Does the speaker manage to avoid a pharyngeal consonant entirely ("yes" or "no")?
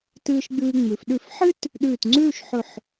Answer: no